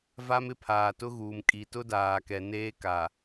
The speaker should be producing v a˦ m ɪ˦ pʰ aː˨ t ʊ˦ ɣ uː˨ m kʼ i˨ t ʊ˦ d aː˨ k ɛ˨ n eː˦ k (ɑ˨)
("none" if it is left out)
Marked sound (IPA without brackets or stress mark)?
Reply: a˨